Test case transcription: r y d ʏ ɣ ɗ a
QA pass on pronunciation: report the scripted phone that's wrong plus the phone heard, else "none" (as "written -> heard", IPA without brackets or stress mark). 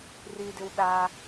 ɣ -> w